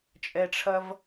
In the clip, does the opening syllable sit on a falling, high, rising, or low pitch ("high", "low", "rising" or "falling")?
low